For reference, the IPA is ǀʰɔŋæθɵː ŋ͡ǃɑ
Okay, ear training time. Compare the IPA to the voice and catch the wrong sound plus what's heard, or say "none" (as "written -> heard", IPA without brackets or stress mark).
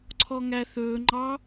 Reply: none